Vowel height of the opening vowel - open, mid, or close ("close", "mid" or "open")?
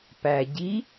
open